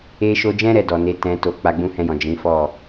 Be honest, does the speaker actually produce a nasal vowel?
yes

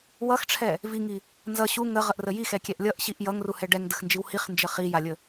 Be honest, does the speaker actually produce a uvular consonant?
yes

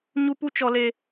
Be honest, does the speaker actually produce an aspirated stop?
no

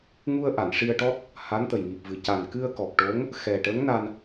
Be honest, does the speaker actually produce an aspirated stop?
no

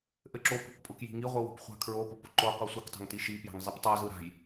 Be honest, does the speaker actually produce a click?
yes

